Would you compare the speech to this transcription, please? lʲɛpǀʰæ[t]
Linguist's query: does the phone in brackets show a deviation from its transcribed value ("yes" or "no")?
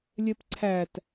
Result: no